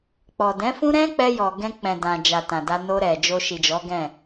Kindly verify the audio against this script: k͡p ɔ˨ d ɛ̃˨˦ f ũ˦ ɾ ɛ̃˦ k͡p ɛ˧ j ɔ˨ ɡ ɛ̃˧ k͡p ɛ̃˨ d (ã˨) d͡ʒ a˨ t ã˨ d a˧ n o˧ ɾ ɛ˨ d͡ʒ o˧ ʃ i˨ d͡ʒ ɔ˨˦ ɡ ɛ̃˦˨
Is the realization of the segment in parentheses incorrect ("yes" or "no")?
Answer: no